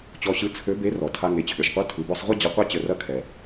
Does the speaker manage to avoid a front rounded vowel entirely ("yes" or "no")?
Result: no